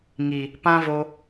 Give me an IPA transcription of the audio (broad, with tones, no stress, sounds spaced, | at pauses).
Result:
ŋ i˨ | p ã˦ v o˧